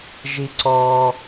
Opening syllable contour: high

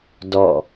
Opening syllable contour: falling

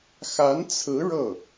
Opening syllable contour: rising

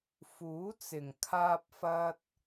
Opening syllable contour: rising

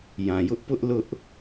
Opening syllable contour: low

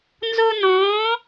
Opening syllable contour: high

